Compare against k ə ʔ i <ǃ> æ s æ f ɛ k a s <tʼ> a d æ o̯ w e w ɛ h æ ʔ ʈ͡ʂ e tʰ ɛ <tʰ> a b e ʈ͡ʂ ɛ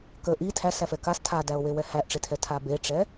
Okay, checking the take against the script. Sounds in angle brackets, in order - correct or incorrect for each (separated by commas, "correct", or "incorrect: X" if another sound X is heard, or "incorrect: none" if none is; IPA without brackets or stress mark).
incorrect: tʰ, incorrect: tʰ, correct